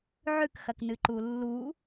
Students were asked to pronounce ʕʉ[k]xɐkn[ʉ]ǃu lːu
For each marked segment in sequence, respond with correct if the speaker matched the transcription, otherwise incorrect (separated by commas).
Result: correct, incorrect